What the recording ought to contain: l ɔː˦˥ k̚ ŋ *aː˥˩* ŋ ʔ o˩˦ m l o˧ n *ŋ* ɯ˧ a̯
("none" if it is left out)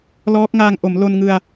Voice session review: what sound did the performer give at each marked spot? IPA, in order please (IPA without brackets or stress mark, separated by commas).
aː˧, ŋ